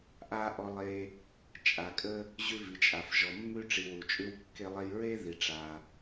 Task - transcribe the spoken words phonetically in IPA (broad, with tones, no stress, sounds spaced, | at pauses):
ʔ a˧ ʔ ɔ˧ lˠ e˧ | t͡ʃʼ a˩ kʼ ə˧ | ʑ ʉ˧ v i˩ t͡ʃʼ a˩ f ʒ ɔ˩ mː ʉ˧ ʈ͡ʂ i˩ w u˩ t͡ʃʼ ʉ˧ w kː e˧ lˠ e˧ j ɹ e˥ ð i˩ ʈ͡ʂ a˩